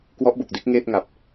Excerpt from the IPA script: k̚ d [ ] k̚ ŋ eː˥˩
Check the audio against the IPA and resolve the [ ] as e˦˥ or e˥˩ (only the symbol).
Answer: e˦˥